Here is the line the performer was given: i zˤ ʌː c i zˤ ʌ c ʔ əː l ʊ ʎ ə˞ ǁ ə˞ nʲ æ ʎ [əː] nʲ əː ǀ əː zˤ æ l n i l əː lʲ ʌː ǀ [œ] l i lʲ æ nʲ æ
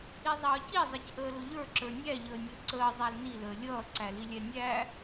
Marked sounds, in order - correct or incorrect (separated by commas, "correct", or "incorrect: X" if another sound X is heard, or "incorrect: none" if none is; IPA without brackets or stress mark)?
correct, incorrect: æ